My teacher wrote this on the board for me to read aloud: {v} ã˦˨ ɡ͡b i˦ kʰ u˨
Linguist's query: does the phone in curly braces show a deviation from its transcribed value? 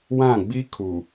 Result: yes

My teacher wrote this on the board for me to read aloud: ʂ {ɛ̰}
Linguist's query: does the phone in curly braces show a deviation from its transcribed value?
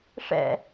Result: no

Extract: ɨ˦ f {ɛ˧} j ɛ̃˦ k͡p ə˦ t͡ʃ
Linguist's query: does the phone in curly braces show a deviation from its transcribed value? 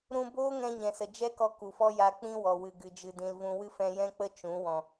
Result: yes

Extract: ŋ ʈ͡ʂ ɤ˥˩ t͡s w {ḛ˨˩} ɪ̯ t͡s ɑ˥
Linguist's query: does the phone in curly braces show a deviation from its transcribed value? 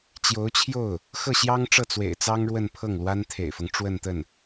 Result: no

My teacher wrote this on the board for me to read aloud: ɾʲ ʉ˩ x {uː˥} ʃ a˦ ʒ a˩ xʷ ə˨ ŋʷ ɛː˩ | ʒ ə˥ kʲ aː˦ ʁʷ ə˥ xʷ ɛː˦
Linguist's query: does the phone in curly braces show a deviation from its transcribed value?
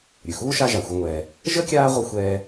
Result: no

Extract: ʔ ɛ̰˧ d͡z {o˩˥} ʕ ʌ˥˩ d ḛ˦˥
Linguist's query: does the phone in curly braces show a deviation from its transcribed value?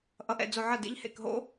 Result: yes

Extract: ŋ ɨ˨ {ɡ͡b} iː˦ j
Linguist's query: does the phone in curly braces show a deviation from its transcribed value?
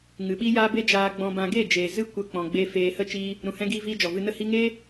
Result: yes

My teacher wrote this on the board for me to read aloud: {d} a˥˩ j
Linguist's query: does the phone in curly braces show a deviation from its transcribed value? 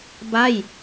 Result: yes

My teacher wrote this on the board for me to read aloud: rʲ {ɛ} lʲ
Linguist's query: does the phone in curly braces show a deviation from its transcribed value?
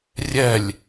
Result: no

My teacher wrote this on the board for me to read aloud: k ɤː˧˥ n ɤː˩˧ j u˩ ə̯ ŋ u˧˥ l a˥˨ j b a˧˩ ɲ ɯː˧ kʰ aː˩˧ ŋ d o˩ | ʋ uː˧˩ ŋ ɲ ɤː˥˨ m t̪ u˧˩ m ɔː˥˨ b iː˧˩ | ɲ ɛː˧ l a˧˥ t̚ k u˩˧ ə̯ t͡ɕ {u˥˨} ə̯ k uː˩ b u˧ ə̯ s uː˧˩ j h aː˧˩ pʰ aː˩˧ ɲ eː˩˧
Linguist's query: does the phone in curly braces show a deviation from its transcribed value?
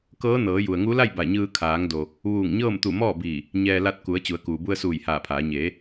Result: yes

